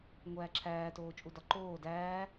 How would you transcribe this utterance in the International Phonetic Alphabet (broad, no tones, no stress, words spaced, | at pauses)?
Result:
ŋʷæːǁʰæː toːt͡ʃʼudɒǃoː dæː